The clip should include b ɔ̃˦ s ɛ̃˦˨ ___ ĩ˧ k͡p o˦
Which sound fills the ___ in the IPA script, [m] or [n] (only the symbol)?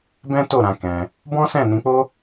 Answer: n